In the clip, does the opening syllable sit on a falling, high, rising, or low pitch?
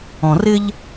low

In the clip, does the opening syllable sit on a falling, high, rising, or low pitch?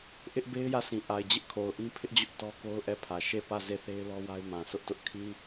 high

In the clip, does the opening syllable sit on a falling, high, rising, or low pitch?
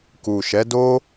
low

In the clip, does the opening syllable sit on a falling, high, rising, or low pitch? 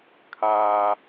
low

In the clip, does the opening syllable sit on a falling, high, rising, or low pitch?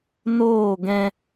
falling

